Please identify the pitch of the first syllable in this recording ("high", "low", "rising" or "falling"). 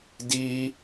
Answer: high